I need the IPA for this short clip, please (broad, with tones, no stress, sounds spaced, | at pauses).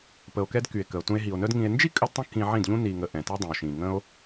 p ə˧ o̯ k ɛ˦ d k y˨ e̯ k ə˨ o̯ t ũ˧ e̯ ɦ i˨ o̯ n œ˦ d ŋ ĩ˧ e̯ n d͡ʒ i˦ kʼ ə˧ d tˤ ə̃˧ k ĩ˧ ʕ ĩ˦˨ d ʎ ũ˦ n i˨ ŋ ə˨ ʔ ɛ̃˨ t ɛ˦ dˤ ə̃˨ o̯ ʃ ĩ˨ ŋ ə̃˦ o̯